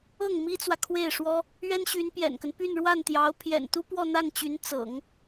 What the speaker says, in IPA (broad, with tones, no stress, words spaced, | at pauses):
ɤ˥˩ŋ mi˥t͡swä˨kʰwe˥˩ɪ̯ʂwɔ˥ | ɥɛ˥nɕy˧˥n pjɛ̰˨˩nkə˦n py˥˧n ɻwa˥˩nt̪jɑ˧˥ʊ̯ pʰjɛ̰˨˩nt̪u˥ pwɔ˥˧n̪a˥˩nt͡ɕy˧˥n t͡sɤ̰˨˩˦ŋ